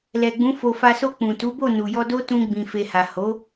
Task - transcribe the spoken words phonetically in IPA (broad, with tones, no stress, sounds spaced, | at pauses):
l ɛ˨ ɡ͡b ũ˨˦ f o˧ f a˧ s o˧ k͡p ũ˨ t u˨˦ b o˦˨ n u˨ j ɔ˧ d o˦ t ũ˧ ɡ͡b ĩ˨ f e˨ h a˨ h o˨˦